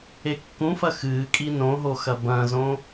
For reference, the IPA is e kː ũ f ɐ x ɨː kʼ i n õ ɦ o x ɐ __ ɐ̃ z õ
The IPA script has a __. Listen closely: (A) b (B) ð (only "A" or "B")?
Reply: A